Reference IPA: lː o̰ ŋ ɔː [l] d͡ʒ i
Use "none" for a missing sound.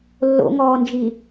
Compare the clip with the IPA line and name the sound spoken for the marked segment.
n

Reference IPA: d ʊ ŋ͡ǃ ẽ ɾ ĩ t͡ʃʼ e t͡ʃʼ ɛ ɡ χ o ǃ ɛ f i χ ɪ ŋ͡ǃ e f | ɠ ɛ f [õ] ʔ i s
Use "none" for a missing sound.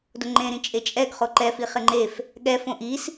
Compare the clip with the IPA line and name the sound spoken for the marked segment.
õ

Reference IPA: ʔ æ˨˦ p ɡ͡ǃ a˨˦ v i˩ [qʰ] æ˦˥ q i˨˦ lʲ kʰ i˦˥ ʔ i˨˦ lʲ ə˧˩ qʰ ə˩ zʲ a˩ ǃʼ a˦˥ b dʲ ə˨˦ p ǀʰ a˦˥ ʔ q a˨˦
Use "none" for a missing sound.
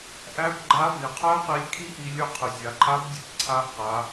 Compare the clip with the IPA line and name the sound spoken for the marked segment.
qʰ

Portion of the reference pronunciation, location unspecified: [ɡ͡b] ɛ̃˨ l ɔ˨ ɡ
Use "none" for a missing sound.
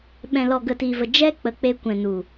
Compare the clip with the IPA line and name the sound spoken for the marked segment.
ɓ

